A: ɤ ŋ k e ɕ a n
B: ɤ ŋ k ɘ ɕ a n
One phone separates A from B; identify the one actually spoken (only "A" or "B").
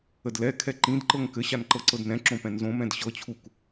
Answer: B